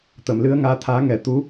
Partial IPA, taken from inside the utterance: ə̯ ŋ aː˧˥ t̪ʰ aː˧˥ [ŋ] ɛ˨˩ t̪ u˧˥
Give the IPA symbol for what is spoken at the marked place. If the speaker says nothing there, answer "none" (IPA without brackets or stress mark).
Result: ŋ